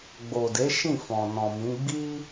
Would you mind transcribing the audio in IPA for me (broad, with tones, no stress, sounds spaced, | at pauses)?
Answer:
ɡ͡b o˨ d e˨˦ ʃ ĩ˦˨ f ɔ̃˨ n ɔ̃˨ m ĩ˨˦ ɡ͡b i˦